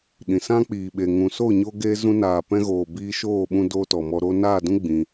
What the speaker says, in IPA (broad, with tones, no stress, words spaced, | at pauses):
ɗĩ˨sã˦k͡piː˨ɓe˨ ŋũ˨ so˦˨ɲo˧ ɡeː˦ zũ˧naː˨pɛ̃˧ɣoː˨ biː˧ʃoː˦˨ɓũ˧ doː˦tɔ˨mɔ˧ ɾo˧naː˦˨dũ˦ ɡ͡bĩ˧